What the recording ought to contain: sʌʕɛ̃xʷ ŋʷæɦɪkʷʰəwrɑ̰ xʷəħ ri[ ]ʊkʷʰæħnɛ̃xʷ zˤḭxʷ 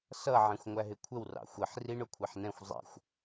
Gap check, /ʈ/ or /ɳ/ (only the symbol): ɳ